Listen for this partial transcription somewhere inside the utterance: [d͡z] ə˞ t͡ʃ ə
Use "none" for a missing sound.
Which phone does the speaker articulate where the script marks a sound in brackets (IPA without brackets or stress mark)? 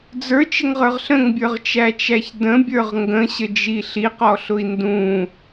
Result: d͡z